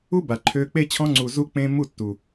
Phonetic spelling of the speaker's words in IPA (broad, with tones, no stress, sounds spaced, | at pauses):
u˦ b a˨ ǃʰ ø˧ k͡p e˧ t͡ɕʰ ɔ̃˧ ŋ͡ǀ uː˨ z u˧ k͡p ẽː˧ m u˦˨ tː u˨